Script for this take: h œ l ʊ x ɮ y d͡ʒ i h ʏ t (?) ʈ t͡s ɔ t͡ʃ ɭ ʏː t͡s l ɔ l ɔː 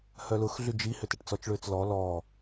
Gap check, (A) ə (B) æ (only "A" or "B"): A